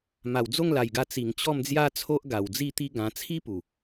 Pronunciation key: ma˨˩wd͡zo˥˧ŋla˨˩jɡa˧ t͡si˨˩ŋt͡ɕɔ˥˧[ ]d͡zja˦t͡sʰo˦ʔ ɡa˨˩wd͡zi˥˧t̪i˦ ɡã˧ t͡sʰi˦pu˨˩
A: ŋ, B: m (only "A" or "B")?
B